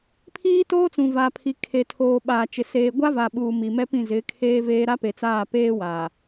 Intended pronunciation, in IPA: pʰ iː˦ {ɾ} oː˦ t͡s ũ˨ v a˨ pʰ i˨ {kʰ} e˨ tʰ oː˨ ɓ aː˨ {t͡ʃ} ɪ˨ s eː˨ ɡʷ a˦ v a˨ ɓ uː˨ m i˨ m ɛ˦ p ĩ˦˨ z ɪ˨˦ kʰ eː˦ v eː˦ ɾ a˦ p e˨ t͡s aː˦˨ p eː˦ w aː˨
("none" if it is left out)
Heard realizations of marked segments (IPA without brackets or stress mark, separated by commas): t, kʰ, t͡ʃ